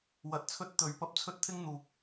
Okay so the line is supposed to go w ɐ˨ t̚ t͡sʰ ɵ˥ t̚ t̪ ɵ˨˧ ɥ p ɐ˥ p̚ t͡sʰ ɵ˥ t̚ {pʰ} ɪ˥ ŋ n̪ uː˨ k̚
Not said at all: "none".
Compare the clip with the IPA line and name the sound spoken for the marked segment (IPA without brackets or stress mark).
t̪ʰ